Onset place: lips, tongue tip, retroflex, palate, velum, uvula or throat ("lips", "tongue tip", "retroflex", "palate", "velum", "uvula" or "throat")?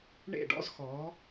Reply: retroflex